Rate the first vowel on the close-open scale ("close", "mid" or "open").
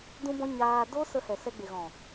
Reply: close